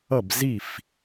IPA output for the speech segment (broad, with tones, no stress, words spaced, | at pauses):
ʌ˥˩bzi˥˩f